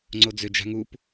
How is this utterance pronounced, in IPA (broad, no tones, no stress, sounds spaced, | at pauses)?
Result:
ŋ͡ǀ o d͡z ʏ d͡ʒ a̤ ŋ u p